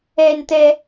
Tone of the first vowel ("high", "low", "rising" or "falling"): high